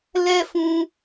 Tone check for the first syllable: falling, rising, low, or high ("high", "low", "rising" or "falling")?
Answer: high